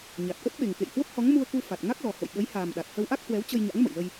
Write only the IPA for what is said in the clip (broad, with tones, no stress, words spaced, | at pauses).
ɲa˨˩t̚ʔə˦˥t̚ɓe˨˩ŋkḛ˧˨j hwə˦˥p̚hɔ˨˦ŋmu˧ə̯ku˧ fa˨˩t̚ŋa˦˥k̚lɔ˨˩ ho̰˧˨jɓə˨˦jhaː˨˩mɗa˨˩t̚ hə˧wʔa˦˥k̚hwɛ˨˦w t͡ɕə˧jɲa̰˧˥ŋmə̰˧˨jlə˧j